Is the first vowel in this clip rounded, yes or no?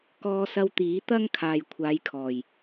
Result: yes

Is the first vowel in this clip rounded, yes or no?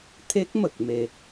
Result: no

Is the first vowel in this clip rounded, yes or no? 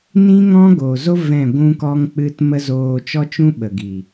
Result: no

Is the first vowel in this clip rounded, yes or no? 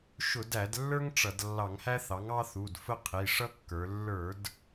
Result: yes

